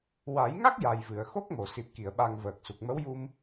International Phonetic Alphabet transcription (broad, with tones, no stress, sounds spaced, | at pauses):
w a˨˩˦ j ŋ a˦˥ k̚ j a˨˩ j v ɨ˨˩˨ ə̯ x o˦˥ k̚ m o˨˩˨ s i˨˩ p̚ k i˨˩˨ ə̯ ɓ a˨˩ ŋ v əː˨˩ k̚ s u˨˩ k̚ m ə˧˥ w j u˧ m